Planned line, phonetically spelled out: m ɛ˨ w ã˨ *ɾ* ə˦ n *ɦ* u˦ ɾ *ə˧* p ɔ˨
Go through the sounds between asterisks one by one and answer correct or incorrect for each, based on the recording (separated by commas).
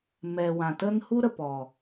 incorrect, incorrect, incorrect